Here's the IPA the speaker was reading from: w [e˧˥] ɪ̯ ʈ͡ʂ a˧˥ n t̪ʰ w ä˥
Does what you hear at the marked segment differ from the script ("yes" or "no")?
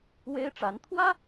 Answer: yes